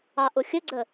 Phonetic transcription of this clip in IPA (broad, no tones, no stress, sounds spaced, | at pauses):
ɑ ʔ ʊ xʲ ə ɡ͡ǀ ə